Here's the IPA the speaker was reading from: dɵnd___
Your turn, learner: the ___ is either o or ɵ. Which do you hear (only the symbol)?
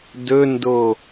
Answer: o